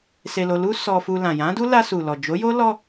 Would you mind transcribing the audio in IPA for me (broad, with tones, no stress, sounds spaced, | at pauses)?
s e˧ l o˧ l u˦ s ɔ˧ f u˧ l ã˨ j ã˨˦ d u˦ l a˧ s u˨ l ɔ˨ d͡ʒ o˨˦ j o˦ l ɔ˧